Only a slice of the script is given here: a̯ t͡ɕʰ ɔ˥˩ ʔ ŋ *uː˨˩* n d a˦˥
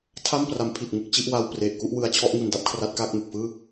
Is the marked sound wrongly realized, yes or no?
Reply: yes